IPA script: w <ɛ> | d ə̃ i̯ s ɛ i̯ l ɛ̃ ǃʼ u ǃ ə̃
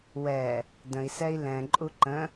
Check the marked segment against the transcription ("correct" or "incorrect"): correct